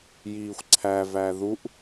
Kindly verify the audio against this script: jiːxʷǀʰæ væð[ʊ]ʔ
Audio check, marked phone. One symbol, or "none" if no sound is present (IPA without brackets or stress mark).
u